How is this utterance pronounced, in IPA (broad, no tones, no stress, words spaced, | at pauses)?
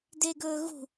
deɡɵːɣṳ